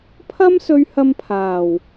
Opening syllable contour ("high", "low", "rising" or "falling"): high